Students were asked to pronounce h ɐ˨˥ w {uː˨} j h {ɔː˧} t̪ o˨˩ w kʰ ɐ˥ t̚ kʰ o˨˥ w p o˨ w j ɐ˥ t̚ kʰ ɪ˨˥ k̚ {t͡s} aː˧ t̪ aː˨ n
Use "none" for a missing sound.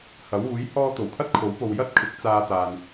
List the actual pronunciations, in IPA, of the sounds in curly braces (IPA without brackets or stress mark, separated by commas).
uː˨˥, ɔː˧, t͡s